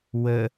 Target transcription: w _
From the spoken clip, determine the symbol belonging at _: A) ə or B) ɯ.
A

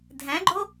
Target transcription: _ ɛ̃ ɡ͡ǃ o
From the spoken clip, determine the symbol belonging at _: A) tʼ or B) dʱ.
B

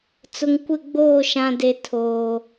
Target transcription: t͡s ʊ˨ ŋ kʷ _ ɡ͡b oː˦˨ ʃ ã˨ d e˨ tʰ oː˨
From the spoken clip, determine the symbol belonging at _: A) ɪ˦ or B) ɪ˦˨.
B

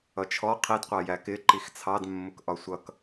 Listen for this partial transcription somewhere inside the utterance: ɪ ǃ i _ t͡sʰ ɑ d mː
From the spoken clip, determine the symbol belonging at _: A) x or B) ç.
A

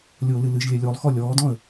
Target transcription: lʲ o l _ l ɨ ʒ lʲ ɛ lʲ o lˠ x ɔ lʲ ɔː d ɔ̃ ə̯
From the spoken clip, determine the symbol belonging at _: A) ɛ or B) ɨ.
B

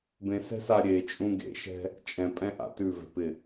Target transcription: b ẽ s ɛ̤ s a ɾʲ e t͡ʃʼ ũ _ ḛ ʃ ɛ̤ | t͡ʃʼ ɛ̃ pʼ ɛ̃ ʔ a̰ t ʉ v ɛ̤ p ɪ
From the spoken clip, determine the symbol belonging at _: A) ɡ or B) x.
A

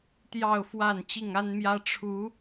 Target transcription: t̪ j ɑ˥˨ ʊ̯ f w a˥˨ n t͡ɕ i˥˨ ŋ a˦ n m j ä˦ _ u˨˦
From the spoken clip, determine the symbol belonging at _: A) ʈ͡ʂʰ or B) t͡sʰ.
A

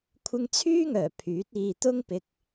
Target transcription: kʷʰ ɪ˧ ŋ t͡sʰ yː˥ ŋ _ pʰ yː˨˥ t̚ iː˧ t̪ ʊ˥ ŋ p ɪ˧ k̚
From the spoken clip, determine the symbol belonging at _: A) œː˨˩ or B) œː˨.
A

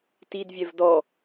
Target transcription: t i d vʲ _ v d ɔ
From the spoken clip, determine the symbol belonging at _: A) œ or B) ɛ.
B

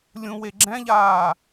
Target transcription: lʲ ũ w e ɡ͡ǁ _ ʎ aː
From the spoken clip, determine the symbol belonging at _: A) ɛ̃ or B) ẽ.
A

